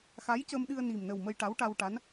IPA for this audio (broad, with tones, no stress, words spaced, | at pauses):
xa˧˥j cə˧mɗɨ˧ə̯ni˨˩mnə˨˩w mə˧jʈa˧˥wʈa˧wʈa˧˥n